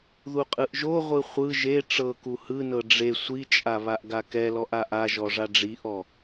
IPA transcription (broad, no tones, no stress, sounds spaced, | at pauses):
ð u qʼ ɯ ʔ ʒ o ʁʷ ɯ χʷ ɯ ʒ e ʈ͡ʂ ɤ k u h ɯ n ɤ ɖ͡ʐ e sʷ i t͡ʃʼ a β a ʔ ɡ a k ɛ l ɔ ʔ a ʔ a ʒ ɔ ʐ a ɖ͡ʐ i ʔ ɔ